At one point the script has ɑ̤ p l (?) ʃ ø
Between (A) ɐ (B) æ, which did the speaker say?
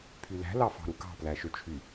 B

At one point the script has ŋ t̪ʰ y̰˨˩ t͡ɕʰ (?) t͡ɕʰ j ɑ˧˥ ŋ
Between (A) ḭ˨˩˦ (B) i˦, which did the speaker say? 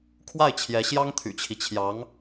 B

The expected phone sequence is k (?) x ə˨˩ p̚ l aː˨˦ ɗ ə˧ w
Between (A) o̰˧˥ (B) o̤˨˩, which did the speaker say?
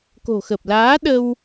B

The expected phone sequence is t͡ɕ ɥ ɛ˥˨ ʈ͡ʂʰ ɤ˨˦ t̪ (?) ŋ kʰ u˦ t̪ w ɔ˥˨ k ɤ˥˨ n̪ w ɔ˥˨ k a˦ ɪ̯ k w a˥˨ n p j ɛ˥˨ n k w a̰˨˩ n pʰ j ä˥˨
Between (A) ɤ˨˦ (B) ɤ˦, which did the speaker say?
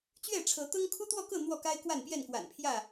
B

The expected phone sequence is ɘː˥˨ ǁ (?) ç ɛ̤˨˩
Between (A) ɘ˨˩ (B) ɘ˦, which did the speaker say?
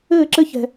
B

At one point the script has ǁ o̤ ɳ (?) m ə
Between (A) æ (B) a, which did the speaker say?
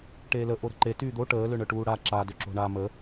B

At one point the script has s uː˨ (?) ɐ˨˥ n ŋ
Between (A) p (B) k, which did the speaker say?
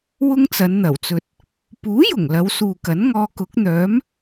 B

